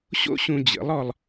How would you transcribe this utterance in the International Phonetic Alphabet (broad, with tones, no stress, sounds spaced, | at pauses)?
ɕ o̰˥ ɕ ũ˧ d͡ʑ ə̰˩˥ lˠ ɔ˧ lˠ